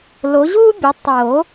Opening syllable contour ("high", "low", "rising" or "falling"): rising